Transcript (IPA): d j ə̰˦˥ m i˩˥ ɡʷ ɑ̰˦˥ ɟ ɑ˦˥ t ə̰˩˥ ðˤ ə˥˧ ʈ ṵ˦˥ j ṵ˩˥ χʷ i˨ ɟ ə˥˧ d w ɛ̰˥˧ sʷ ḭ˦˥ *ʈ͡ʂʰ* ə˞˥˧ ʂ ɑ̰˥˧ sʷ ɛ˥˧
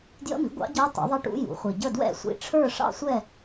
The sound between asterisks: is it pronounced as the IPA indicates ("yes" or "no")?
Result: yes